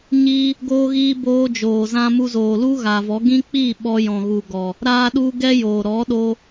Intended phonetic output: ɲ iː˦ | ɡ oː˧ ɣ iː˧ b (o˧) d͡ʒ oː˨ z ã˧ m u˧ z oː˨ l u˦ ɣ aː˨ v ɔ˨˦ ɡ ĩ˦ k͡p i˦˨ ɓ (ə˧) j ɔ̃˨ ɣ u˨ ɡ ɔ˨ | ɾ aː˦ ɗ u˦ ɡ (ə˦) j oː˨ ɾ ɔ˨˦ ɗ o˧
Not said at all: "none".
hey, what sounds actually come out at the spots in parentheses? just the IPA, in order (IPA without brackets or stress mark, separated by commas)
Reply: oː˧, ɔ˧, ɛ˦